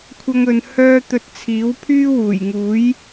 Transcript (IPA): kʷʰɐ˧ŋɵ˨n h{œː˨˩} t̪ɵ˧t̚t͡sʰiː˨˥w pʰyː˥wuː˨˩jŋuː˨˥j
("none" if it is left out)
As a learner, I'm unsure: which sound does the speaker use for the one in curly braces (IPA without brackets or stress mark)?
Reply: œː˧